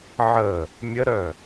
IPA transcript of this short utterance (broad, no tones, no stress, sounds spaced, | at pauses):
ʕ ə | mʲ ə ɾ œ